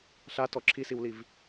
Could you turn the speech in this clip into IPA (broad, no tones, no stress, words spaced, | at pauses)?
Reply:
ɬatɔ ǁʰisiwliv